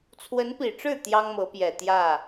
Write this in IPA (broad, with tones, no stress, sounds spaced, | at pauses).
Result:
t͡sʰ w ə˧˥ n p i˨˩ ʈ͡ʂ ɻ̩˥˩ t̪ j ɑ˥ ŋ m ɤ˧˥ p j ɛ˨˩ t̪ j ä˥˩